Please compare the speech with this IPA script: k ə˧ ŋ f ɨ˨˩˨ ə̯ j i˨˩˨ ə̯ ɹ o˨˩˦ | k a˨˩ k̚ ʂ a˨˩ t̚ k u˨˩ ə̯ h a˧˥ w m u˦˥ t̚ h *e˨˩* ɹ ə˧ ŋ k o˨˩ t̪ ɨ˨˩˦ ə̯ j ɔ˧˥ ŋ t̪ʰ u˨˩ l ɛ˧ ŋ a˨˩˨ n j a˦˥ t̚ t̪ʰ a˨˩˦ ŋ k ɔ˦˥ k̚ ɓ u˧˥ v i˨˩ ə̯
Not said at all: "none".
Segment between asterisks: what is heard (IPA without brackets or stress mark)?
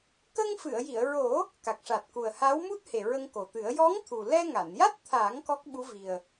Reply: e˨˩